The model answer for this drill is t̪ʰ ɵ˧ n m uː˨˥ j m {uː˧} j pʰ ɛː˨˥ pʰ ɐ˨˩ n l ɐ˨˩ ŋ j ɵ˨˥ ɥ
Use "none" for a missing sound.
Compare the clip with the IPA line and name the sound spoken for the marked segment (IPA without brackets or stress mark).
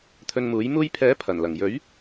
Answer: uː˧